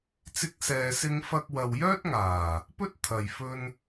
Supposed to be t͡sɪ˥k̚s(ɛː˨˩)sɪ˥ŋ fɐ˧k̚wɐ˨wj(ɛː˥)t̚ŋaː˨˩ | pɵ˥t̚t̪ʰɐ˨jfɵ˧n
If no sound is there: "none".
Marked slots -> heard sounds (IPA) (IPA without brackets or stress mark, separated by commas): ɛː˧, œː˥